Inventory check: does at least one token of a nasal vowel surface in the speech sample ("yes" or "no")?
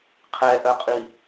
no